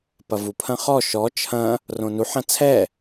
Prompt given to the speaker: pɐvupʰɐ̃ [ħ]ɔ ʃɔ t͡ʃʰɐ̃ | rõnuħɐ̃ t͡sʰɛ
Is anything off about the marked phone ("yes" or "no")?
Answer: yes